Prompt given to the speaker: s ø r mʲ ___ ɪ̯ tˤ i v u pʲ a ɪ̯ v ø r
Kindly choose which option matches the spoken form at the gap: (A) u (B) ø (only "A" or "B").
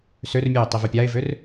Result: A